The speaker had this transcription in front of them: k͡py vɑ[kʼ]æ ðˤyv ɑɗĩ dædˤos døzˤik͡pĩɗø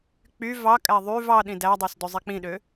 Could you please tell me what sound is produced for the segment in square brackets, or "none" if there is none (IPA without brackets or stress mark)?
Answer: kʼ